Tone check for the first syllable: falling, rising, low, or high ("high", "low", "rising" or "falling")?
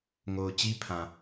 low